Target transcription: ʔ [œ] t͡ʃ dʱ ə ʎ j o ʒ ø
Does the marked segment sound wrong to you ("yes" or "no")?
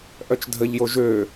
no